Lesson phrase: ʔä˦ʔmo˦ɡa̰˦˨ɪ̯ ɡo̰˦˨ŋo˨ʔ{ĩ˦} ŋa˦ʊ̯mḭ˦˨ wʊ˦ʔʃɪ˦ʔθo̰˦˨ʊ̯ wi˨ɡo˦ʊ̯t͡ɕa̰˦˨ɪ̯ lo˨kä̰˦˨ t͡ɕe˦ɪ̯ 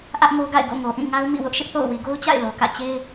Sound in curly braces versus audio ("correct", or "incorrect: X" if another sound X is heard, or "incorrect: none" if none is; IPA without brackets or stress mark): incorrect: ĩ˦˨